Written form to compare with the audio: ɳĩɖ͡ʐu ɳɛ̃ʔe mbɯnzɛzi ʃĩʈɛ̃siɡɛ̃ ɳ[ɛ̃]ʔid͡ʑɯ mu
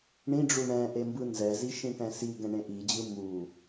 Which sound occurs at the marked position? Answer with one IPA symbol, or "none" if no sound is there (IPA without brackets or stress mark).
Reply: ẽ